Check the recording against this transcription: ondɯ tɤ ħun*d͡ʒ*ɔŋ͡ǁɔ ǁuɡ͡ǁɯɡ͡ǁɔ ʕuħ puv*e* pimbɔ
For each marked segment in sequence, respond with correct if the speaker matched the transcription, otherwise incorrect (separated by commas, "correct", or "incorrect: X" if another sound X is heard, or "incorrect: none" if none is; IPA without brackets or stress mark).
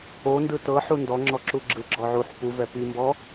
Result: incorrect: d, incorrect: ɛ